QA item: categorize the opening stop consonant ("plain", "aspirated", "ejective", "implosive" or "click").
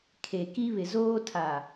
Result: aspirated